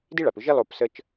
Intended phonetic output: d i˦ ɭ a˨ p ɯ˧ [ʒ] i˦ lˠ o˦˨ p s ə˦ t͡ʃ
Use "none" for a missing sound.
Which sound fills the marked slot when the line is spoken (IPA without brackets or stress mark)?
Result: ʒ